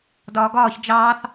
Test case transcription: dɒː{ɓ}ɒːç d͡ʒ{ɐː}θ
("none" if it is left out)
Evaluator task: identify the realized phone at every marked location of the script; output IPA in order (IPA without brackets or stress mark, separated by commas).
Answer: ɡ, ɑː